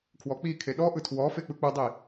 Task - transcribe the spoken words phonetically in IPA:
kʰwɔk͡pikʰe ɗɔʔɯ tʰwɔfe k͡pɯk͡pɯdˤi

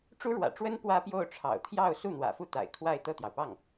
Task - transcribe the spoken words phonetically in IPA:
ʈ͡ʂu˥ɻwä̰˨˩ʈ͡ʂwə˥n pwä˥pjo˥˩ʊ̯ ʈ͡ʂʰɑ̰˨˩ʊ̯t̪ʰjɑ˥˧ʊ̯ su˥˩n̪wä̰˨˩fu˥˩ t̪a̰˨˩ɪ̯kʰwa˥˧ɪ̯ t̪ɤ˥˩t̪jɑ˩ʊ̯pɑ˥˩ŋ

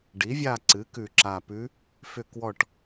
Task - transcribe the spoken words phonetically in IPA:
ɖi˩˥vʲa˦˨ ǀɨ˩˥kʉ˨˩ǁa˨˩pʉ˧˥ | fʏ˦˨kwɔ˦˨ʈ

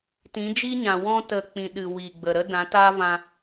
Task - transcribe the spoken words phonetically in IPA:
tĩ˨˦d͡ʒi˦ɲã˨ wɔ̃˧tə˨k͡pĩ˨ɗɨ˨ wi˨ɡ͡bə˨ɾə˦ dã˨˦taː˦vã˧

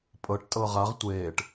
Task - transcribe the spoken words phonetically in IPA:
pʼɤʈtʼɤ ʁaʁ tʷeːʈ

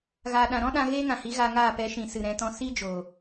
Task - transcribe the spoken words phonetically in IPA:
ɣaː˨ɗã˨ɾɔ̃˦ɗã˧ ɣeː˦ŋã˨hi˨˦ ɣaː˧ŋaː˦˨ pɛ˨˦ʃĩ˨sɨ˨ ɾɛ̃˧tɔ̃˦ si˦ d͡ʒoː˨

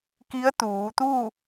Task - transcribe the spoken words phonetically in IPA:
ki˧˥ə̯t̪uː˩˧t̪uː˥˨

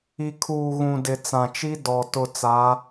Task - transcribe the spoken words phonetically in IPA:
i˨ kʰuː˨ɣũ˨ dɪ˨t͡sã˨t͡ʃi˦ dɔ˨ tʊ˨ t͡sa˨˦

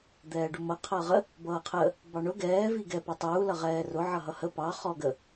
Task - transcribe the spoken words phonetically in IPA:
d̪ɛːɖumʌ qʰʌːʁə | bʌːqʰə | bɑɳʊ ɡɛː viɡɛ pə˞tˤuː lʌʁɛːrʊ ʕʌɦʌhə pɑ χɔɡə

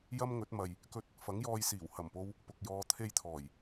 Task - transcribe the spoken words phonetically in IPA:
jɐ˥mŋɵ˨˥t̚mɐ˨j | kɵ˥t̚ | fɐ˨˥ŋjɔː˧jsiː˨˩w hɐ˨˩mpo˧w | pʊ˨k̚ jɔː˧t̪ʰe˥jt̪ʰɔː˨˩j

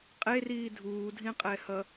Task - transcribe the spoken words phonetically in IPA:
qʼeriː dʱuːdʱĩqʼɛhʌ

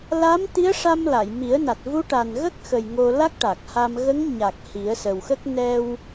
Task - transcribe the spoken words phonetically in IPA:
la˧˥m t̪i˧˥ə̯ʂa˧m la˨˩˨jmi˨˩˦ə̯na˨˩t̚ vu˧˥ʈa˨˩nɣə˦˥k̚xə˨˩j ŋo˧la˦˥k̚ʈa˨˩k̚ha˧m ɣə˧˥ŋɲa˨˩k̚ hi˨˩˦ə̯sə˨˩wxə˦˥k̚ nɛ˧w

